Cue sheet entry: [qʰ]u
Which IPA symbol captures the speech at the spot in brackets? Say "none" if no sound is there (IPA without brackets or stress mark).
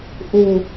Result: ʔ